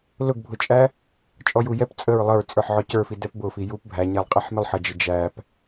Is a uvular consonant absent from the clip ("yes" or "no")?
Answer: no